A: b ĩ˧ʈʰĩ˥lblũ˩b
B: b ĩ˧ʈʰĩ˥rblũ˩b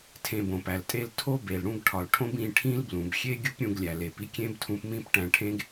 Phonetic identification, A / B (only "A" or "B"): A